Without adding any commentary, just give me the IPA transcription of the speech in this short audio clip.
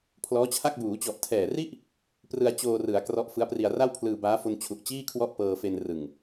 pʰ l ɔː˦˥ t͡ɕʰ a˥˩ k̚ b uː˩˦ t͡ɕ ɔ˨˩ ʔ tʰ ɛː˨˩ r i˥˩ ʔ | p r ɯ˧ a̯ t͡ɕ oː˧ r ɯ˩˦ a̯ k r ɔ˦˥ ʔ f ɯ˦˥ a̯ p r i˧ a̯ r a˥˩ w pʰ l ɯː˧ b aː˦˥ f o˧ n t͡ɕʰ u˨˩ ʔ t͡ɕ iː˥˩ kʰ w ɔ˥˩ ʔ p ɤː˧ f e˧ n r ɯ˨˩ ŋ

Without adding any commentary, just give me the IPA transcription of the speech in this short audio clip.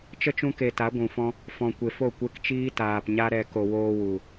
t͡ʃ ə˦ t͡ʃ ũ˧ k e˨ t a˨˦ ɡʷ ũ˨ f ɔ̃˦ | f ɔ̃˨ kʷ e˨ f o˦˨ kʷ e˧ k t͡ʃ iː˦ t aː˨ p ɲ a˦ ɾ ɛ˧ k o˨ w oː˧ w u˨

